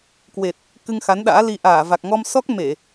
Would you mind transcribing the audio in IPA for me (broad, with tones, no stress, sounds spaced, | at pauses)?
k w e˨˩ t̚ | k ɨ˧ ŋ x a˨˦ n ɗ a̰ː˧˥ l i˧ ʔ aː˧˩ v a˨˩ k̚ ŋ ɔ˧ m s ɔ˦˥ k̚ m e˧˩˨